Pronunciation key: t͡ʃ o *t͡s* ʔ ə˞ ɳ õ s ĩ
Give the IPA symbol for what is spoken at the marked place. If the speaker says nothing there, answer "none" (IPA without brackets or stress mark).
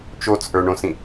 t͡s